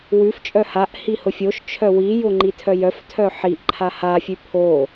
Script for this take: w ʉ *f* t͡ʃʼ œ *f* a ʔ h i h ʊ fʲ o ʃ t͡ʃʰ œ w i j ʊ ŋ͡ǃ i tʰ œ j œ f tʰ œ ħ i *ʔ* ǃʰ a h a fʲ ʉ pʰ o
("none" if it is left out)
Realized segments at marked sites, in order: f, h, ʔ

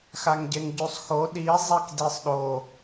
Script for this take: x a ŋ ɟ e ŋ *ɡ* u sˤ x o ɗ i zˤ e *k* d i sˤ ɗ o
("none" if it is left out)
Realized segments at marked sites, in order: ɟ, k

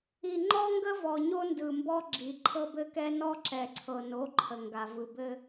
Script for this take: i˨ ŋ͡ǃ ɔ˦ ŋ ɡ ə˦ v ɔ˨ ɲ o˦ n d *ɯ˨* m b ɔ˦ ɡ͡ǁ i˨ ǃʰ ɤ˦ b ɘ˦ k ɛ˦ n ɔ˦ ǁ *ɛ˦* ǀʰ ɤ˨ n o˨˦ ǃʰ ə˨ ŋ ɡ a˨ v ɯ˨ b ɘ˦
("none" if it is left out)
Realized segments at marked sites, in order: ɯ˨, ɛ˨

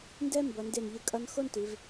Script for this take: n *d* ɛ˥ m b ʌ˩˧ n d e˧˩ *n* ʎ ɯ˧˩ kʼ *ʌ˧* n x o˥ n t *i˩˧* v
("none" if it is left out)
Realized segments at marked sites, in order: d, n, ʌ˧, i˩˧

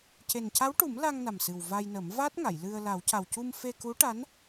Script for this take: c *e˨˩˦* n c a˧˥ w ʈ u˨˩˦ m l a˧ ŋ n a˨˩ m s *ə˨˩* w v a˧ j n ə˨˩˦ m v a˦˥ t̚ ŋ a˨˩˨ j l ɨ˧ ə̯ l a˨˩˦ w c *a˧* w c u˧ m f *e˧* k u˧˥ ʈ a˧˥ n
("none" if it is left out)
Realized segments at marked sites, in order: e˨˩, ɨ˨˩, a˨˩, e˧

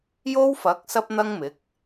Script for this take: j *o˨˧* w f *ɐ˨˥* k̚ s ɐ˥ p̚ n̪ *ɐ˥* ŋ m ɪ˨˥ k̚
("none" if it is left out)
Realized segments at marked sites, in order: o˥, ɐ˨˥, ɐ˥

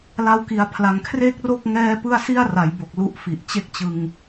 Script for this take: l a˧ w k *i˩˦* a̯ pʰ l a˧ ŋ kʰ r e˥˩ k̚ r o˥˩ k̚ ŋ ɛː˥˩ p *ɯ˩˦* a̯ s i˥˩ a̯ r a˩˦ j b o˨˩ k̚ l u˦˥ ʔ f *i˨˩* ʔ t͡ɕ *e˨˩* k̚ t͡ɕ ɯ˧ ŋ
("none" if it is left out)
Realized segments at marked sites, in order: i˦˥, ɯ˥˩, i˨˩, e˦˥

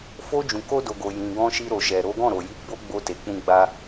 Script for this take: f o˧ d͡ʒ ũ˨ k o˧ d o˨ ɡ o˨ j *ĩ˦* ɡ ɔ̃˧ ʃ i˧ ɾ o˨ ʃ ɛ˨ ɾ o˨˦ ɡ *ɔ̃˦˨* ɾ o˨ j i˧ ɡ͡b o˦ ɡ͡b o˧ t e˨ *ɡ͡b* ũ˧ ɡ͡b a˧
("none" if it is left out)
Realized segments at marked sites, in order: ĩ˨, ɔ̃˦˨, k͡p

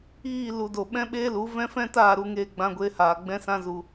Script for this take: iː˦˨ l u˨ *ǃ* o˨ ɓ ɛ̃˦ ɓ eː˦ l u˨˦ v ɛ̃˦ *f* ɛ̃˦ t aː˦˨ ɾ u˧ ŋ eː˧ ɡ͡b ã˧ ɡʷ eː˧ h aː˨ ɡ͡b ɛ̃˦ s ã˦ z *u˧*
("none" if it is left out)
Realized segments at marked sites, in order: d, f, u˧

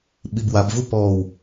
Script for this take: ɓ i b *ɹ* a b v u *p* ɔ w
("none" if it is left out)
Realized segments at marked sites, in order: w, p

